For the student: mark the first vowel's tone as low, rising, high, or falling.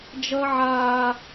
high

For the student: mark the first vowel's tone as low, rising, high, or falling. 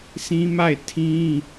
high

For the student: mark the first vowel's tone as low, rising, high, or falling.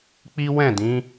high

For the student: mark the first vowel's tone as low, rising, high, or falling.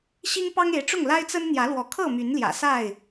high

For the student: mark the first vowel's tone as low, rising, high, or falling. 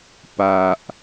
low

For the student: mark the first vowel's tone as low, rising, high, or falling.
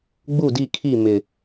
falling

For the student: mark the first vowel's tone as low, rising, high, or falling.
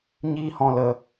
high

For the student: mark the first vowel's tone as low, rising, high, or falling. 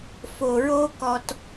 low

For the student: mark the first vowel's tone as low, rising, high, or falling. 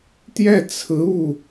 falling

